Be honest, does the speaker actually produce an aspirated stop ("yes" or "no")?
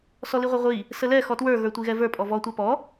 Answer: no